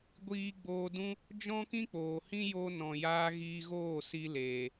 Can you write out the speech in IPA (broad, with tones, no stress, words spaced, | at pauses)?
ɡʷiː˧ɡ͡boː˧dũ˦ | d͡ʒɔ̃˦kĩ˦k͡poː˨hĩ˦ jo˦nɔ̃˨jaː˦ ɣiː˧ɣoː˦˨ si˧leː˨